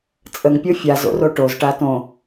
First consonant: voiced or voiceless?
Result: voiceless